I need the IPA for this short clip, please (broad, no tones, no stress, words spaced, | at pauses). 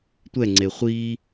tʷɛŋ͡ǀe χʷi